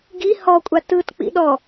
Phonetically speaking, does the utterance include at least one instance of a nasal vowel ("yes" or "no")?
no